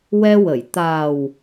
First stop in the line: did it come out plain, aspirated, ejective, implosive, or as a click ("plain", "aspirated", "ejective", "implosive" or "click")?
plain